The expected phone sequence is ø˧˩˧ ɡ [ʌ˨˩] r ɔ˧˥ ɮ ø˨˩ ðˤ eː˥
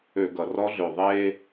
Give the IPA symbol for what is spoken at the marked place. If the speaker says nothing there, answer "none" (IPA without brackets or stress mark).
ʌ˨˩